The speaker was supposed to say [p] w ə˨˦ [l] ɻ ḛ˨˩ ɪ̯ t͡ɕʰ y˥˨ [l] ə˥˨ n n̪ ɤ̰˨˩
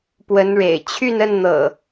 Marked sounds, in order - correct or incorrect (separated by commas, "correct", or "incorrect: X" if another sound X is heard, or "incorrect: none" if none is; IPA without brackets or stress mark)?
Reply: correct, incorrect: n, incorrect: n